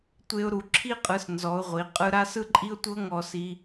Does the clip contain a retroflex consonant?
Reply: no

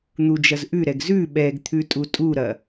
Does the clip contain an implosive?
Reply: yes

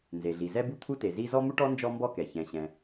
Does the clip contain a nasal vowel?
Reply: yes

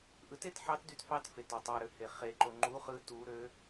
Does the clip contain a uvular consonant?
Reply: yes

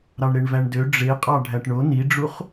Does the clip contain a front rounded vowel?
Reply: yes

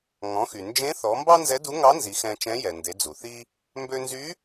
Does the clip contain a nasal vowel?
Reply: yes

